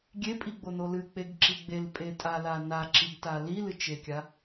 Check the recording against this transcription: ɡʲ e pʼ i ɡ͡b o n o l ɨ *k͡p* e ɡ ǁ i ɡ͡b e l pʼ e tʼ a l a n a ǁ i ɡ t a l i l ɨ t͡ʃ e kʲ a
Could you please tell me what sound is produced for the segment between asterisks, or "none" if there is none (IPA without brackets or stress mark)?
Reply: k͡p